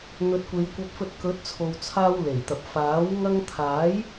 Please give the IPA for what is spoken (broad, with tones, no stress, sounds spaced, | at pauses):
n̪ ɵ˨˥ t̚ kʷ e˨˧ j kʷ ɐ˧ p̚ f ɵ˧ t̚ k ɵ˨˥ t̚ t͡sʰ o˨ w t͡sʰ aː˧ w l e˨˩ j t̪ ɐ˨ p̚ f aː˨˥ w ŋ ɐ˧ ŋ t̪ʰ aː˨˥ j